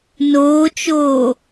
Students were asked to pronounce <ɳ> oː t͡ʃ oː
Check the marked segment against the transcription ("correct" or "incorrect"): incorrect